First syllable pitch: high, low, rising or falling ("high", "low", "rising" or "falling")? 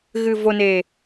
low